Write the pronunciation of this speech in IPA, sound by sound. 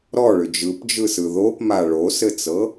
ɾ ɔ ɭ ʏ d͡ʒ ɯ p d͡ʒ ɯ s ɯ ð o p m a ɭ o s ɘ t͡s ɤ

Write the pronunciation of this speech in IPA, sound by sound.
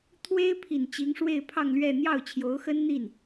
t̪ʰ w e˥ ɪ̯ pʰ i˨˩ n t͡ɕ i˧˥ ŋ ʂ w e˥˧ ɪ̯ pʰ ɑ˥˧ ŋ l ɥ ɛ˥˧ n̪ j ɑ˥˩ ʊ̯ t͡ɕʰ j o˧˥ ʊ̯ x ə˥ n n̪ i˥˩ n

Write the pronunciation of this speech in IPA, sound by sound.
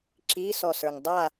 ǁ i s ɔ s ə˞ ŋ dˤ a

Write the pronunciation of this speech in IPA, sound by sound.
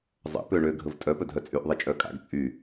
zˤ ə̰ p ø ɳ ø ɡʱ ə v tʼ œ p œ dʱ œ t͡sʼ y ʔ ðˤ ɛ t͡ʃʼ œ kʼ a̰ ɡ t͡sʼ y

